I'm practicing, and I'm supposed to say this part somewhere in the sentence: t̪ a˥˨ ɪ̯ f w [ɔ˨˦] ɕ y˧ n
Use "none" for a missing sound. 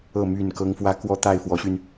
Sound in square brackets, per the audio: ɔ˨˦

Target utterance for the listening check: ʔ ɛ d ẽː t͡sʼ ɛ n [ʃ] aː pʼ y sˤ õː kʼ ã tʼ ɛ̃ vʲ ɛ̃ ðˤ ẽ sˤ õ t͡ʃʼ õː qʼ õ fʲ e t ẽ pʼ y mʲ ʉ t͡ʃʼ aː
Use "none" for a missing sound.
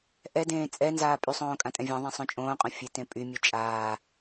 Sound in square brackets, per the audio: z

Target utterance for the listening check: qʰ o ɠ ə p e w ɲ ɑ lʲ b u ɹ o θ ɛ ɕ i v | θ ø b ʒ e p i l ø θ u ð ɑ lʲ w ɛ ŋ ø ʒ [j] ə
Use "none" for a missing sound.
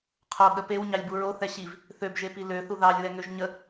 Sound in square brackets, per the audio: ɲ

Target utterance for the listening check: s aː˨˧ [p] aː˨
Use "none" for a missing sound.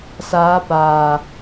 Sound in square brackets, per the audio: p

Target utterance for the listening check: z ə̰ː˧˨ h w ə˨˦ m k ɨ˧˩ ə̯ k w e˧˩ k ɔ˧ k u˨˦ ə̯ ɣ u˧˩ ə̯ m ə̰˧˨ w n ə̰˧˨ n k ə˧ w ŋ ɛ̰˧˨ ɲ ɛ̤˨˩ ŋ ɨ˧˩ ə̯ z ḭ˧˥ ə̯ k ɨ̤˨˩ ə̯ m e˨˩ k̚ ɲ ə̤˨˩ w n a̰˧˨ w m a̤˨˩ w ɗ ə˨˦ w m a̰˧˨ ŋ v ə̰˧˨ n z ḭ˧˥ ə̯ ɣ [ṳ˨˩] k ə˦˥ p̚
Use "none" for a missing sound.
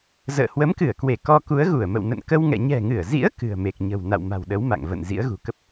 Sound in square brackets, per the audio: ṳ˨˩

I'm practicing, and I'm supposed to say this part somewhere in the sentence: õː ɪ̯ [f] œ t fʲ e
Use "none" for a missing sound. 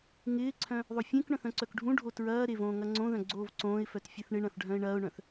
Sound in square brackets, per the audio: f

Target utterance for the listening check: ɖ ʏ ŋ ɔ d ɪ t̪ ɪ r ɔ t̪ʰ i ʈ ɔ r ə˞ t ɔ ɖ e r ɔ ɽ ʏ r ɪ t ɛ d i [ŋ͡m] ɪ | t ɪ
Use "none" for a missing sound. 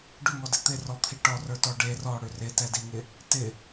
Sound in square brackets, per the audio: ŋ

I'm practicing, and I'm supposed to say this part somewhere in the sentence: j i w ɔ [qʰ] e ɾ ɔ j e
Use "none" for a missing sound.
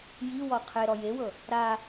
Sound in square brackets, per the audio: qʰ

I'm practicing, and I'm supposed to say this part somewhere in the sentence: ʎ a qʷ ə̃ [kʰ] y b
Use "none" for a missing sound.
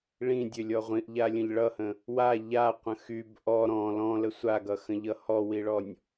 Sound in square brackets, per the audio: x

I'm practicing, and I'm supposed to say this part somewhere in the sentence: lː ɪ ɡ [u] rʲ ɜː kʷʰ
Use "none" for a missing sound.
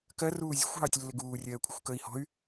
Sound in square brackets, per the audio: uː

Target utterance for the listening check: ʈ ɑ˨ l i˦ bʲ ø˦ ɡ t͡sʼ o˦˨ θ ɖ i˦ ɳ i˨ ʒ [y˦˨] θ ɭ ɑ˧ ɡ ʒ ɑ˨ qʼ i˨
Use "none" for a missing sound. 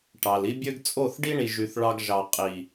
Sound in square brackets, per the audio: y˨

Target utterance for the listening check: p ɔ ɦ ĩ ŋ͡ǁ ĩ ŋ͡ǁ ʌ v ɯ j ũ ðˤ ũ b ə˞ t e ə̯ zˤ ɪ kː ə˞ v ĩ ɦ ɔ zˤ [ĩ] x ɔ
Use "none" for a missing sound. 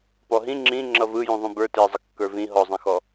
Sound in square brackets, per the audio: ẽ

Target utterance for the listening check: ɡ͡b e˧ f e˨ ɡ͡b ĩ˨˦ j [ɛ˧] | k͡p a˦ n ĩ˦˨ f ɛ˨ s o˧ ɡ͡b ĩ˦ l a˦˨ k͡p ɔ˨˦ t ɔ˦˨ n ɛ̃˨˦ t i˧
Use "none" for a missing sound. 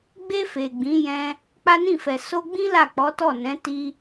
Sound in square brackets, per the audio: ɛ̃˧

